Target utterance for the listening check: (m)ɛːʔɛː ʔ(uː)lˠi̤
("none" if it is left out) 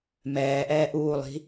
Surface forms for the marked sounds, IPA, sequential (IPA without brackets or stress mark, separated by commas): m, uː